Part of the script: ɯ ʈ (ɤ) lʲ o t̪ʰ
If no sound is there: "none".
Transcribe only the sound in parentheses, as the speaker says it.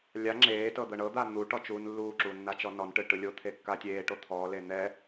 ɯ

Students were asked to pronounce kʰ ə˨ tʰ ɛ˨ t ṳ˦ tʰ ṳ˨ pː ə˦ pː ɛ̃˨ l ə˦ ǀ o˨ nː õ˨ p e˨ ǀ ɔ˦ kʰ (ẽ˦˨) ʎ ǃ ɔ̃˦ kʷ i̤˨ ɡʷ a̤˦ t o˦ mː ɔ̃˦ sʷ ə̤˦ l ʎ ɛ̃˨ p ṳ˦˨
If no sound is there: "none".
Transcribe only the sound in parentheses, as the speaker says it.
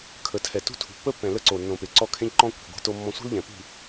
ẽ˦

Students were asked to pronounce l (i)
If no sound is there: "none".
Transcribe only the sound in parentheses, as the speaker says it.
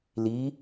i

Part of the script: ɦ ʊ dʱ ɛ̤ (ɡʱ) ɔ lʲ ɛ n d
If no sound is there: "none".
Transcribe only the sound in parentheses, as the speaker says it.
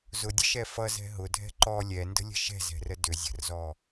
ǃ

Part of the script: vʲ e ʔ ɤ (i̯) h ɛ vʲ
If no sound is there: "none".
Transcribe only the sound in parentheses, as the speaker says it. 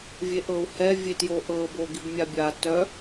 u̯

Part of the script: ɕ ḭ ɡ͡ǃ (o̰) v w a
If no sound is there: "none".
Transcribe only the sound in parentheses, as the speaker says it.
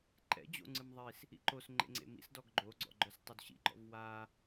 ɔ̰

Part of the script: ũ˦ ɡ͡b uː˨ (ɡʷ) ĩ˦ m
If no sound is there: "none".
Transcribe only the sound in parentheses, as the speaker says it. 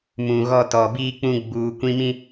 kʷ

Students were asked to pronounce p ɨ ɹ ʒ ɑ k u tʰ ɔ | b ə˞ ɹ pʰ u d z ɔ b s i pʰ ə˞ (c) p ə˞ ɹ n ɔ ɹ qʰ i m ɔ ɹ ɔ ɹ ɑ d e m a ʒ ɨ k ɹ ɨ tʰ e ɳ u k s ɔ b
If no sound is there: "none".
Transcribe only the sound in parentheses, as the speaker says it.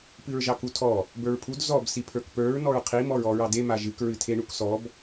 k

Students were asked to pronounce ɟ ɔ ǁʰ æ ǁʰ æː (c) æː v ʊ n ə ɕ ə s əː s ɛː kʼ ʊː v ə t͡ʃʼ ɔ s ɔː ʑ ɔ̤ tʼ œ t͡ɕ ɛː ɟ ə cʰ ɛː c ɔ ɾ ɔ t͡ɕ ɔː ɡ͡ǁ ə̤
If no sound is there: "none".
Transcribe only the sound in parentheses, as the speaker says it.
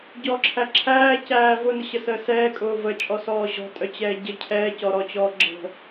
c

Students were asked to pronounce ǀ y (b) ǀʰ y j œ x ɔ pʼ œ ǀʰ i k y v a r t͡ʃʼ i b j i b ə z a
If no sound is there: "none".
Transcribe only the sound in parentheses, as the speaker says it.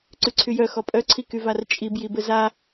none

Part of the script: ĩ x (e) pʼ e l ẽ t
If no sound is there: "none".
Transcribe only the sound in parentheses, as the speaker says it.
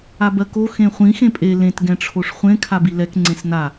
ẽ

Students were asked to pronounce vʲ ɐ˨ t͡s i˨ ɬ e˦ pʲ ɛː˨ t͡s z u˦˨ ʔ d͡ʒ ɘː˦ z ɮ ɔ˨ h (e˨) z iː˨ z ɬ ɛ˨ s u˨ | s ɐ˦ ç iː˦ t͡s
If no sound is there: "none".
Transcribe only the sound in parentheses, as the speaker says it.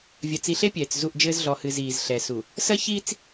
ɨ˨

